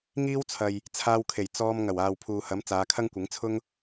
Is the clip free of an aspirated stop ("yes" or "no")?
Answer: no